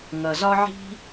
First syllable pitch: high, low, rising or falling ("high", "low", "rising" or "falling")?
low